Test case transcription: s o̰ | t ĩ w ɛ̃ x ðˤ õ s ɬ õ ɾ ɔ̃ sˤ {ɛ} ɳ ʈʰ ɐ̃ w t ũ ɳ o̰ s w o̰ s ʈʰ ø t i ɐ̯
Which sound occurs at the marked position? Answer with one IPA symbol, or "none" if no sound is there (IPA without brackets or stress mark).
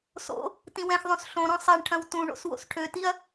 ɛ